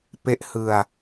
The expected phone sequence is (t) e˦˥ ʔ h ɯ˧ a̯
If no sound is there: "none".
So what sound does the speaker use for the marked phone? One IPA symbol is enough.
p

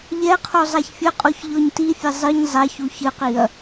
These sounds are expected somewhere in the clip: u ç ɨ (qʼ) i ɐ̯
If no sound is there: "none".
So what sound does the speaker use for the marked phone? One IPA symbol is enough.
q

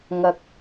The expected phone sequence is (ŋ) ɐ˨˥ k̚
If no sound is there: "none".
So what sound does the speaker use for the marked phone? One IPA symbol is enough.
ŋ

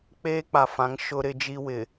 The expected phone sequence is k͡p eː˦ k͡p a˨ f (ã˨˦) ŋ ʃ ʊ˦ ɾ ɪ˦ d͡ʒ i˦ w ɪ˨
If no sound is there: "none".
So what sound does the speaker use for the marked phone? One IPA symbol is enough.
ã˨˦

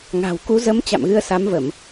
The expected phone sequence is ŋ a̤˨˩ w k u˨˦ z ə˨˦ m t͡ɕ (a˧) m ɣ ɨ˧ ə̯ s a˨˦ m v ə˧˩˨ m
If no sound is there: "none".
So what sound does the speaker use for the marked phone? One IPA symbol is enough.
a̰˧˨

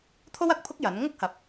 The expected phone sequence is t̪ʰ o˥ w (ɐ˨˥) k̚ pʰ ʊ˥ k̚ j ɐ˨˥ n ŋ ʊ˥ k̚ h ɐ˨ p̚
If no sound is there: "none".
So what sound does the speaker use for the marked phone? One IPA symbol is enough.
ɐ˨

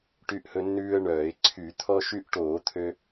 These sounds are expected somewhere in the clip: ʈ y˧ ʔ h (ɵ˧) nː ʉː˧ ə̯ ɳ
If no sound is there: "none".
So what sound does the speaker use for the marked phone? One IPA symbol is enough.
ɵ˧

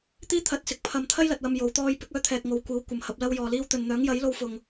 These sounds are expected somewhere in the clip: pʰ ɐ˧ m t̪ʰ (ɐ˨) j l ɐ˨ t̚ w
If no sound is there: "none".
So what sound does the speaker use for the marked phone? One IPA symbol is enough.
ɐ˥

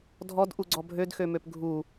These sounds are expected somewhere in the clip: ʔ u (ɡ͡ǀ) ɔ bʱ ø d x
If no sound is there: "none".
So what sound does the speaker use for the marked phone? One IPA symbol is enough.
ɡ͡ǀ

